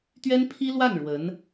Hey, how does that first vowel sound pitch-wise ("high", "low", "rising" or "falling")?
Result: high